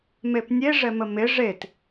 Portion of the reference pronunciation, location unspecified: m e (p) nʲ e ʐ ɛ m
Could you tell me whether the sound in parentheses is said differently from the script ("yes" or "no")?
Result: no